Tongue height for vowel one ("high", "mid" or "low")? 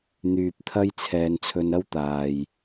high